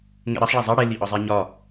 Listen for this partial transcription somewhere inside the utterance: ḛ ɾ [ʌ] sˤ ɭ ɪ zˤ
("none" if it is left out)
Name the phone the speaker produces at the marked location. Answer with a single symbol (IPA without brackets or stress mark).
ʌ